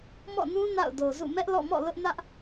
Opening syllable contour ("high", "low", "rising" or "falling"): falling